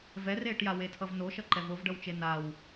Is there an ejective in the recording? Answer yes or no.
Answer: no